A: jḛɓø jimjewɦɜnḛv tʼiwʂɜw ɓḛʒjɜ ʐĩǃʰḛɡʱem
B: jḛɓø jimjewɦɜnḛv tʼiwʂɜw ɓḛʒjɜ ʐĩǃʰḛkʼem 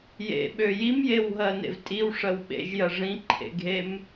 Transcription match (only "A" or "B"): A